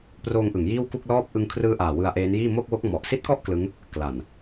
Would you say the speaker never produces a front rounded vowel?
yes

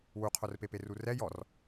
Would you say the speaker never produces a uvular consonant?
no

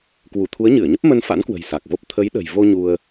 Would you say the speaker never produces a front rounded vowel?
yes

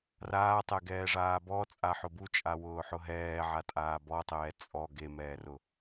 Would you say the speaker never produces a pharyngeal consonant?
no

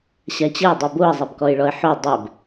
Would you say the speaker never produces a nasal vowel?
yes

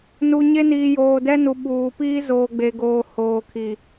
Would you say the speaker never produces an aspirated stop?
no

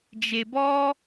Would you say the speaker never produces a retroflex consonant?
yes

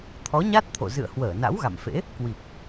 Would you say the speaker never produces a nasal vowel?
yes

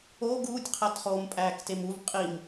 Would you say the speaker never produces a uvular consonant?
no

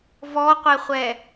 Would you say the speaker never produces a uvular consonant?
no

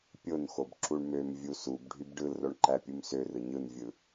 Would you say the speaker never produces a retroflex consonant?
no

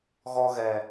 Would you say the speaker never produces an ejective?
yes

